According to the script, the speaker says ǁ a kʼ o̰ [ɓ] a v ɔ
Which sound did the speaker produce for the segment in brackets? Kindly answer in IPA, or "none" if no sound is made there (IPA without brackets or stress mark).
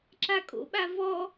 ɓ